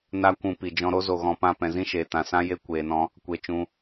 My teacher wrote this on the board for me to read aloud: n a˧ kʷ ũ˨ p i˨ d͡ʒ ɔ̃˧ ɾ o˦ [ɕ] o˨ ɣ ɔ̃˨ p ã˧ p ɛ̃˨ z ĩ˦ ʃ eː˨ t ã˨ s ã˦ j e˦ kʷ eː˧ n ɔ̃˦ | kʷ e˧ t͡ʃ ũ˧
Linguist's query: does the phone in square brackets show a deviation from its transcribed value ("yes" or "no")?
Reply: yes